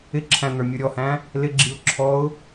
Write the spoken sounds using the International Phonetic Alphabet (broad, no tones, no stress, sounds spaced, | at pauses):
ɪ ǁʰ æ̃ n̪ ə˞ mʲ u ɾʲ ɔ h æ̃ | l ɪ ɡ͡ǁ i ʊ̯ ǁʰ ɔ ʊ̯